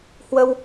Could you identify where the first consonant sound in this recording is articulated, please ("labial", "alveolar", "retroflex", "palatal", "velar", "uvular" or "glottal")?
glottal